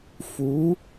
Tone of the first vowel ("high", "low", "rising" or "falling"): rising